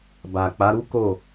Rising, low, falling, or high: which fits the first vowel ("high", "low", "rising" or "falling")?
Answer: low